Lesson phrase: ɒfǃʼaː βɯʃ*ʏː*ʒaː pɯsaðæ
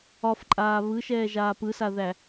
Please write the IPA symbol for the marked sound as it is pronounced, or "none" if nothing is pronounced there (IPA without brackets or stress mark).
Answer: ɛː